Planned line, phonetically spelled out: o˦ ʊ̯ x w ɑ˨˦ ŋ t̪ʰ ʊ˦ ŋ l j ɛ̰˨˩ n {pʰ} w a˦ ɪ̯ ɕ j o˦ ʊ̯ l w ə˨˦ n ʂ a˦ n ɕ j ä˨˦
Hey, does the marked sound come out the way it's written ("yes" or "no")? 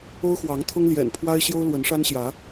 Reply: yes